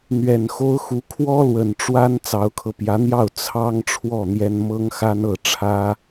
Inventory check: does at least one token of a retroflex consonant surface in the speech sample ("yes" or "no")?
yes